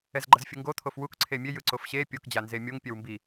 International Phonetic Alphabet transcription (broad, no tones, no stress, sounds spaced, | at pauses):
ɛ z ɡ͡ǃ ʌ z fʲ ɯ ŋ ɡ o t̪ʰ o f w u k ǀʰ e mʲ e j ɯ ǀ o f ɕ e pʲ o k d͡ʑ a n z e mʲ o ŋ pʲ ɛ w m b i